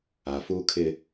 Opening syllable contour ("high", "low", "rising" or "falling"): low